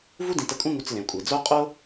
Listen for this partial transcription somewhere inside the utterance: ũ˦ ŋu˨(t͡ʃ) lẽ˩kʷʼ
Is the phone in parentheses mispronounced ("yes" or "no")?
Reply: yes